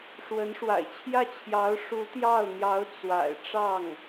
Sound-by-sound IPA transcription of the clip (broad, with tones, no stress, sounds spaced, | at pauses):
ʂ w ə˧˥ n ʂ w a̰˨˩ ɪ̯ t͡ɕʰ j ä˥˩ t͡ɕʰ j ɑ˧˥ ʊ̯ ʂ u˧˥ t̪ j ɑ˥˩ ʊ̯ n̪ j ɑ˧˥ ʊ̯ t͡s w a̰˨˩ ɪ̯ ʈ͡ʂ ɑ˥˩ ŋ